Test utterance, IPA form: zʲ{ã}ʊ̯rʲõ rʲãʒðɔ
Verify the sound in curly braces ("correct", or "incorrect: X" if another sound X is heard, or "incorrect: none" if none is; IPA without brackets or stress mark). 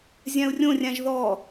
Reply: correct